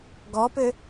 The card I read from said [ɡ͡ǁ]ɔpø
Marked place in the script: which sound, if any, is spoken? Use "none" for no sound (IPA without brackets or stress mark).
ɡ